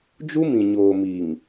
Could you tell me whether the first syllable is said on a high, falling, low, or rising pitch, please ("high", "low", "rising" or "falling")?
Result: high